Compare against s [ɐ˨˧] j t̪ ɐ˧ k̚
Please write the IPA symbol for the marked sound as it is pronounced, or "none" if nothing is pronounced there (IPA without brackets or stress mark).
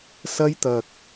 ɐ˥